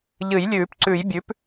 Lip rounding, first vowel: unrounded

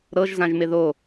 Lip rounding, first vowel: unrounded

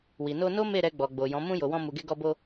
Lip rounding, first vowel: unrounded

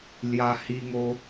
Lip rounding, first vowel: unrounded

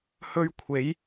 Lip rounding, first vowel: rounded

